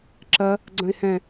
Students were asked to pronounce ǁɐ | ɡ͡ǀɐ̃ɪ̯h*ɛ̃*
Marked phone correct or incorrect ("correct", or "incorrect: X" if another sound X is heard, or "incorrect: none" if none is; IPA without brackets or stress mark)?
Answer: correct